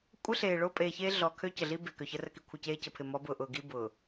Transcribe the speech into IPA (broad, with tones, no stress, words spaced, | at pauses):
kʷʼə˦ɬeː˨ ɭo˦pʼeː˨çeː˦ ɮɔ˨ kʰø˦cə˨ɮi˦be˨ kø˨çə˦rə˦ki˨ kʷʰə˦˨ceː˦cə˨ pʰɪ˨mɔ˨˦bʊː˨ʔʊː˨ ɡi˦ bʊː˨